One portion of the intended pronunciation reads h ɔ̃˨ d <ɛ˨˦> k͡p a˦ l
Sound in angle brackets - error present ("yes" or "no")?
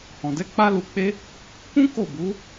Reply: no